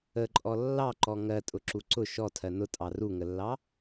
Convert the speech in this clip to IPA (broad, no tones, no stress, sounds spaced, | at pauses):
ə ǃʼ ɔ lː ɑ ǃ ɔ ŋ ɜ tʼ ʊ ǁ u ǀ ʊ ʃ ɔ tʰ ɜ n ʊ tʼ ɑ r u ŋ ə lː ɑ